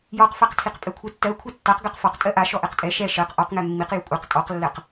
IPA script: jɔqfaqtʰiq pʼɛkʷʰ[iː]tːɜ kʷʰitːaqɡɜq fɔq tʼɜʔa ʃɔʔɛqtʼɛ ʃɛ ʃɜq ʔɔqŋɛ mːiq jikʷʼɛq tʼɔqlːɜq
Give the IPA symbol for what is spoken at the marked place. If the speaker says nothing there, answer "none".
i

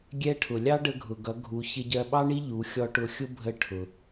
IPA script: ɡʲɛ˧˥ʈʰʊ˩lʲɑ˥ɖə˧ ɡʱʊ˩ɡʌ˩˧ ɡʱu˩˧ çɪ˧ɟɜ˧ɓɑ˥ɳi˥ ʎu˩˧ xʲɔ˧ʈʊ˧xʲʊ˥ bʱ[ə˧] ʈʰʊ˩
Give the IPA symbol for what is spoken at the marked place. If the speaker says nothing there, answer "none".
ə˧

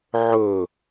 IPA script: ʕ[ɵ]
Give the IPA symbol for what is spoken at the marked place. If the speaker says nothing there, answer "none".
ɵ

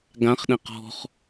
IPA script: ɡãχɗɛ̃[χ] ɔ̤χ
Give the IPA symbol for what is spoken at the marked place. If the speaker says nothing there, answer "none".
q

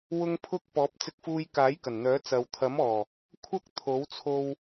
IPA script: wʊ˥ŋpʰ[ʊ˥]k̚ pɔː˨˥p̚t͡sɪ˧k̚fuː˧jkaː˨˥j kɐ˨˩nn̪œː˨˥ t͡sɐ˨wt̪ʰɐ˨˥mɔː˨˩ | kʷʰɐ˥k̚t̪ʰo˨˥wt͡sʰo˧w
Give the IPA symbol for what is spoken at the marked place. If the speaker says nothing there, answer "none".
ʊ˥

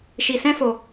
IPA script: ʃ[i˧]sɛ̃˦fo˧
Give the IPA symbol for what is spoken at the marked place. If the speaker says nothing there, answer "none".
i˧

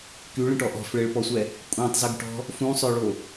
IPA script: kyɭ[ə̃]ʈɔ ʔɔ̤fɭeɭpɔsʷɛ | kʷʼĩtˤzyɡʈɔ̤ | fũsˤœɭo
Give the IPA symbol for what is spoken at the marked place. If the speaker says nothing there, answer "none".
ə̃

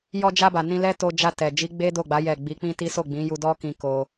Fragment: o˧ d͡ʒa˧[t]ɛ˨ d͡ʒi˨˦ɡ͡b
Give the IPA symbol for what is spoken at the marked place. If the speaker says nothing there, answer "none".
t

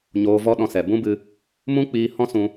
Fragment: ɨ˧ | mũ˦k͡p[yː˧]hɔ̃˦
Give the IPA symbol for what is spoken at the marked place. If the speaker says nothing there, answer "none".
iː˧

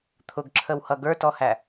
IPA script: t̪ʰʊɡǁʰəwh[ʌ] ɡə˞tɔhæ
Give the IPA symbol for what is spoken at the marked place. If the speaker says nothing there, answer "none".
ʌ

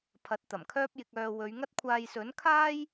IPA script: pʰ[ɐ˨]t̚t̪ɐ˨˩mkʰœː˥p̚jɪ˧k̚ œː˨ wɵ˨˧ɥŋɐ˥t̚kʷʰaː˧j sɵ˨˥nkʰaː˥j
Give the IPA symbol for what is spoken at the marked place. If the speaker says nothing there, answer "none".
ɐ˨˥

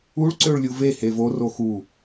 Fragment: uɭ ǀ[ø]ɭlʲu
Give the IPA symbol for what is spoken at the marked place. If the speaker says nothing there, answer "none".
ø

